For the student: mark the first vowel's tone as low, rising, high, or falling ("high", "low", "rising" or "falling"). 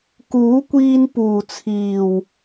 rising